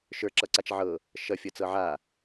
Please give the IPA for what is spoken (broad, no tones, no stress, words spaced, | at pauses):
ʃə˞ǁʌǀat͡ʃ ʕɤ | ʃʌfʲʌt͡sɤ ʕa